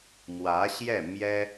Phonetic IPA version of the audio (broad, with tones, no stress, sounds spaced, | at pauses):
m w ä˧˥ ɕ j ɛ˥˩ m j ɛ˥